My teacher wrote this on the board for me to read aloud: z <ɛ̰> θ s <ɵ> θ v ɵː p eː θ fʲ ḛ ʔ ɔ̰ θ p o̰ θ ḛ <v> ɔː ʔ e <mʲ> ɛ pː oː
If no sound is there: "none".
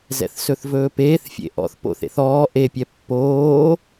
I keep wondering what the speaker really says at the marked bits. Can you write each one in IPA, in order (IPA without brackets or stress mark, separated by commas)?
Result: ɛ̰, ɵ, θ, pʲ